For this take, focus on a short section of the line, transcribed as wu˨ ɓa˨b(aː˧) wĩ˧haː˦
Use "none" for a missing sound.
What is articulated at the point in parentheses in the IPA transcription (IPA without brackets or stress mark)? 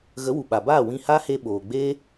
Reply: aː˦˨